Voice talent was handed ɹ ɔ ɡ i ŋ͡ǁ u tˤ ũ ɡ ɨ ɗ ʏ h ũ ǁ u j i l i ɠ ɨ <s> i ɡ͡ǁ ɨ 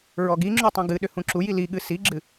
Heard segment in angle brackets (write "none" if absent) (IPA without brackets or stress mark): s